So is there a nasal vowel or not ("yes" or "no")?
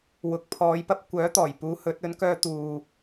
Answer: no